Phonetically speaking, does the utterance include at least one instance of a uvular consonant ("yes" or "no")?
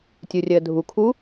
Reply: no